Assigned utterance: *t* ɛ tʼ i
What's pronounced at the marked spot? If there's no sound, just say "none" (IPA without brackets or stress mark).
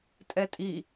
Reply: tʼ